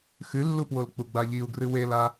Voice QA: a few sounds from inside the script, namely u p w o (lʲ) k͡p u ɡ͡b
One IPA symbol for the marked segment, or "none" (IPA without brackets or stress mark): l